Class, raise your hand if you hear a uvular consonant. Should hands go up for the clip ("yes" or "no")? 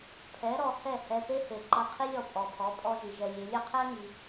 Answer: yes